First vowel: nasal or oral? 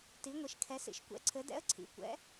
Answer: oral